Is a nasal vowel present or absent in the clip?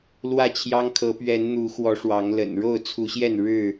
absent